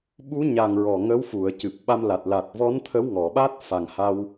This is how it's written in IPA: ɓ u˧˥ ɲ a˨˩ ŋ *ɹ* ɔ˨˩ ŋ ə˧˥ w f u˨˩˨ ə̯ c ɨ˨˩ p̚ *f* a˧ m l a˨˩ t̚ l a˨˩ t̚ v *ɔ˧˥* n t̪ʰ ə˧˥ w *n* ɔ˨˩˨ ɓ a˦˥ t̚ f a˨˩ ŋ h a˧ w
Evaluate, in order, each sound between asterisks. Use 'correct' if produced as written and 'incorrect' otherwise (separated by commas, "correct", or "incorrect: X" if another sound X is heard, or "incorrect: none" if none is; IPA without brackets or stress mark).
correct, incorrect: ɓ, correct, incorrect: ŋ